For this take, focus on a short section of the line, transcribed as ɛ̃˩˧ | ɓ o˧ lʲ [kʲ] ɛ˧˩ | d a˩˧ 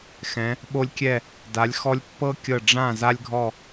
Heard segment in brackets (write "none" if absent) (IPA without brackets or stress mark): kʲ